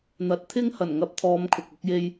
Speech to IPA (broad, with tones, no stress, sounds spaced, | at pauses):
n̪ ɐ˨˥ t̚ t̪ʰ ɪ˥ ŋ h ɐ˨˩ n ŋ ɐ˧ p̚ t̪ʰ ɔː˨˧ m kʰ ʊ˨ k̚ ʊ˥ k̚ j e˥ j